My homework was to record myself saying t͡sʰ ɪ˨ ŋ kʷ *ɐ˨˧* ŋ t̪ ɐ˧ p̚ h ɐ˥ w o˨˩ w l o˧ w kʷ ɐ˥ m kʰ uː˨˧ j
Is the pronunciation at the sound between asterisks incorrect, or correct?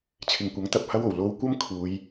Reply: incorrect